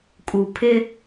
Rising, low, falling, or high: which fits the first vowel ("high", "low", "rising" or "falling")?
low